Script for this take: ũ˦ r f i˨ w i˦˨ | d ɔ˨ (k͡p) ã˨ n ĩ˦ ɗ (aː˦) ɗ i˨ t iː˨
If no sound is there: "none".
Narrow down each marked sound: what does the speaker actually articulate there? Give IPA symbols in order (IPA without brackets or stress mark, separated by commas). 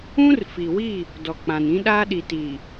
k͡p, aː˦